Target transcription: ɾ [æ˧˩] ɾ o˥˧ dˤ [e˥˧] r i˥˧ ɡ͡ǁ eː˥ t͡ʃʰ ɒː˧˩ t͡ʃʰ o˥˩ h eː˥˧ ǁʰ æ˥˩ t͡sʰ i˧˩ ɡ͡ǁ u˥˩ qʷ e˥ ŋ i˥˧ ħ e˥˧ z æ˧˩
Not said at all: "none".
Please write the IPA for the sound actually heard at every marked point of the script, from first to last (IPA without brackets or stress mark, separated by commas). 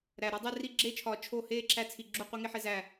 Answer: æ˧˩, e˥˧